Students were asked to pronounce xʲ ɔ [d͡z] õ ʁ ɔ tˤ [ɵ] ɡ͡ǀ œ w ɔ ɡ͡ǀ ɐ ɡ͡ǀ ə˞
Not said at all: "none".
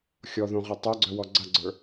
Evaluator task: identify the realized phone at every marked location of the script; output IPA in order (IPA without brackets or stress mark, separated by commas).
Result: ð, œ